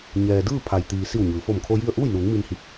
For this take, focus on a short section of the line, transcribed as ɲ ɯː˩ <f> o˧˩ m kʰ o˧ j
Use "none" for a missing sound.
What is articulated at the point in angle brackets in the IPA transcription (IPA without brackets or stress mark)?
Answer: f